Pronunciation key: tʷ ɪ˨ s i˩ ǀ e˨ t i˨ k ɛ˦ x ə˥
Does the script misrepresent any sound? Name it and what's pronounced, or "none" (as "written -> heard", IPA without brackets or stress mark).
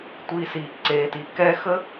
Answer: ɪ˨ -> i˨